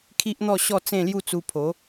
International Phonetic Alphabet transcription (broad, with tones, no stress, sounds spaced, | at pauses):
kʰ i˦ ʔ n̪ ɔ˥˧ ɕ ɔ˥˧ t͡s ẽ˥˧ l j u˥˧ t͡s u˧ pʰ o˨˦